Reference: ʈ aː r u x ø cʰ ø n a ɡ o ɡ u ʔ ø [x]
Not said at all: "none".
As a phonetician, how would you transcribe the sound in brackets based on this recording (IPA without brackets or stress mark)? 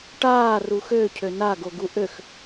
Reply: x